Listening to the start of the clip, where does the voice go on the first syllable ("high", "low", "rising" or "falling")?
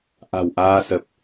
low